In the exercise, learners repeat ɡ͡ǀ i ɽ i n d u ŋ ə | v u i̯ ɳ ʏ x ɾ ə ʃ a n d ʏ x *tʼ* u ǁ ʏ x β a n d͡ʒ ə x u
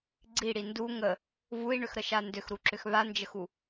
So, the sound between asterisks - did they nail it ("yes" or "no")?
no